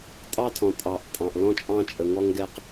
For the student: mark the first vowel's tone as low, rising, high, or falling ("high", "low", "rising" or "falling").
high